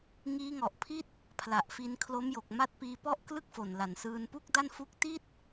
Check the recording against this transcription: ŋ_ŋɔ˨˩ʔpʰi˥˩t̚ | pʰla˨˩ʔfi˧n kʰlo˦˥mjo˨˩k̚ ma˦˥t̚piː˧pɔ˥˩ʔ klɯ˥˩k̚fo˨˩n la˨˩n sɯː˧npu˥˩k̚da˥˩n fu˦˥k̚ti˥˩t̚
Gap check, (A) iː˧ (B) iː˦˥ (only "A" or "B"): B